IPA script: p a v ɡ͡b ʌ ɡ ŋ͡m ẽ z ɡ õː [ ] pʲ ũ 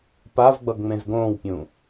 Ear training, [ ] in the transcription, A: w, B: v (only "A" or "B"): A